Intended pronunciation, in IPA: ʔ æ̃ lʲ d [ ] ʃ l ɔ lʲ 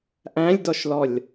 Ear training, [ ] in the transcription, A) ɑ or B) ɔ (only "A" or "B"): B